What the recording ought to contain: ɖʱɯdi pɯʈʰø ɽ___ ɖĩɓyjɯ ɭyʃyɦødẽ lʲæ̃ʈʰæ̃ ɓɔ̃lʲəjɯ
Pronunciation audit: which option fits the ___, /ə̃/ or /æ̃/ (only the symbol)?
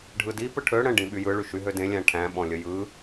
ə̃